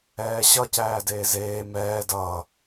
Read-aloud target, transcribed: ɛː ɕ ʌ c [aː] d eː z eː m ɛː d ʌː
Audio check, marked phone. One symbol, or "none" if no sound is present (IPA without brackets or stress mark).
æː